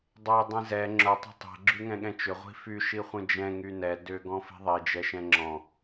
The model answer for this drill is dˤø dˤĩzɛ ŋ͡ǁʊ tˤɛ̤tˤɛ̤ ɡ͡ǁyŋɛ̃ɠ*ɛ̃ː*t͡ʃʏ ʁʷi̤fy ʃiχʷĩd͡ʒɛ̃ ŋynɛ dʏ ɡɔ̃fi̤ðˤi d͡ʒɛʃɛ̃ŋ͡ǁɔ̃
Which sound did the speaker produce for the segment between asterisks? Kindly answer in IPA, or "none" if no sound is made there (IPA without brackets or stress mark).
ɛ̃